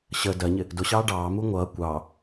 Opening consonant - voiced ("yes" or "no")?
no